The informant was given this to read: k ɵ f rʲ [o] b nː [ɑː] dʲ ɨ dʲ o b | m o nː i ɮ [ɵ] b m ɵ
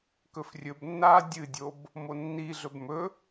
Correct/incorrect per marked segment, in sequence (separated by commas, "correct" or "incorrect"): incorrect, incorrect, correct